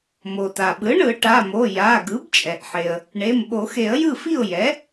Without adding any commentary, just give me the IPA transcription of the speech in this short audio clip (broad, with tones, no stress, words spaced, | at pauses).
mo˩ta˩ɓɯ˩˥ ɳɯ˨˩˦ʈa˩˧˩mo˩˧˩ ja˩˧˩ ɡɯ˩˥bt͡ʃʼɛ˩ʔħe˩ə̯ | ɳe˩˧˩m ɓo˨˩˦xe˨˩˦ə̯jɯ˥˩fi˥˩ʊ̯ jɛ˩˥